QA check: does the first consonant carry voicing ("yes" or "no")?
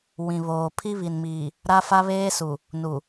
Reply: yes